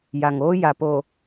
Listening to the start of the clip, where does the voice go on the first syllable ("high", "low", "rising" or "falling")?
low